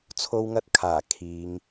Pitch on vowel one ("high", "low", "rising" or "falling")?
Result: high